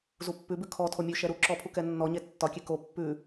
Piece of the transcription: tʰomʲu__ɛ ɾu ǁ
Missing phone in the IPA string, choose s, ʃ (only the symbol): ʃ